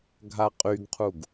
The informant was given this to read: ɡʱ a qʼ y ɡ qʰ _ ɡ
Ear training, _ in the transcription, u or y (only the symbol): u